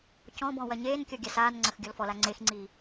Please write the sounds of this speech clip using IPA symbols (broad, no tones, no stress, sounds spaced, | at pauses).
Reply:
c ɔ̃ b ɔ̃ w ɐ ɲ eː n kʲ ɔ ɡʲ a s aː n ŋ͡ǀ ɐ x ɡʲ ɔ l f ɔ l a ŋ͡ǀ e x ŋ͡ǀ iː